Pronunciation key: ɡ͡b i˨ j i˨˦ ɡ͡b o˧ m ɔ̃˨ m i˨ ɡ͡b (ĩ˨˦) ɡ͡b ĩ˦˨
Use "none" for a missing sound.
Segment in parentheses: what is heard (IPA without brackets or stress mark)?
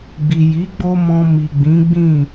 ĩ˨˦